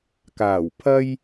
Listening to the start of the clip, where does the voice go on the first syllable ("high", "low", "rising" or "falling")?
low